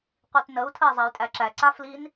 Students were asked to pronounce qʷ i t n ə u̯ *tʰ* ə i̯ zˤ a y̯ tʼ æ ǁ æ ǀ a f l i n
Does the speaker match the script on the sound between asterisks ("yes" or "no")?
yes